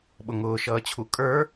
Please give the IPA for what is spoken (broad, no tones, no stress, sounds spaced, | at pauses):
ɓ ʊ ŋ ʊː ʃ ʌː t͡ɕʰ u kʼ ə˞